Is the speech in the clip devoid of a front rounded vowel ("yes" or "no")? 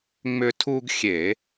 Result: no